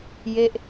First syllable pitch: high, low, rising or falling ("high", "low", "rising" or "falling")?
falling